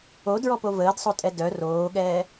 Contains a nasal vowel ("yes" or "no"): no